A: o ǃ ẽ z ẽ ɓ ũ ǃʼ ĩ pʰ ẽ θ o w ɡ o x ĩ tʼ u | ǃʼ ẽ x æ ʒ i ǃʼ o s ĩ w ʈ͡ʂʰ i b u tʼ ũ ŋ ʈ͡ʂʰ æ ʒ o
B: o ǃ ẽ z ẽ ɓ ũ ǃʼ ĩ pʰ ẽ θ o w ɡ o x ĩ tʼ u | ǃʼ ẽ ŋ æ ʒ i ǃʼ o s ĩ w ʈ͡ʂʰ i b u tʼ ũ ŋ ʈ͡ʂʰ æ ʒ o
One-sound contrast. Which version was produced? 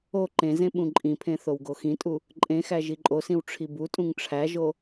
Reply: A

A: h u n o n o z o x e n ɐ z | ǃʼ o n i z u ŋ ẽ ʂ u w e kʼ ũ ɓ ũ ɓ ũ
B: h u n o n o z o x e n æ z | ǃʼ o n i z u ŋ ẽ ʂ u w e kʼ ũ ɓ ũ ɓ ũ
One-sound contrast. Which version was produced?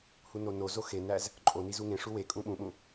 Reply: B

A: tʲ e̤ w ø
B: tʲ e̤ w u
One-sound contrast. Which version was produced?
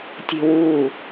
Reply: B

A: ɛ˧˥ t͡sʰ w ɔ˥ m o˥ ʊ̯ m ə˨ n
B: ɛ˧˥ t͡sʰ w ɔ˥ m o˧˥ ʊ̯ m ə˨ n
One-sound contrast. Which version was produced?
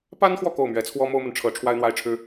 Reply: A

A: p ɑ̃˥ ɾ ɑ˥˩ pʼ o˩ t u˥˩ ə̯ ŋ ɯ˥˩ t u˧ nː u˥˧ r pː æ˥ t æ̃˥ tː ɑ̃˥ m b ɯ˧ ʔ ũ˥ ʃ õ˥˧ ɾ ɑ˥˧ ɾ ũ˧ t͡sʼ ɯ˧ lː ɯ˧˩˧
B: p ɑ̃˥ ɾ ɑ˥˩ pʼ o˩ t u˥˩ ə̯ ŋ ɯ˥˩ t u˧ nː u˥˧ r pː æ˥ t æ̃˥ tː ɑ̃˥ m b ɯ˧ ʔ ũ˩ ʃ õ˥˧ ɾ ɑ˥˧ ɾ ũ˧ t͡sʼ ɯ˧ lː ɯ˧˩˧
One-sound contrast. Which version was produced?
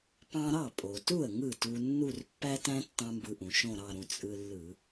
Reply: B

